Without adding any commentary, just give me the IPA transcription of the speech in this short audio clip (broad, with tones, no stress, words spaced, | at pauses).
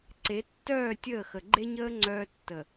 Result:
ǀe˨˦tːœː˦˨ tʲəː˦˨xə˨ ɡ͡ǃe˦ɲəː˦ ŋ͡ǀœː˦tːə˨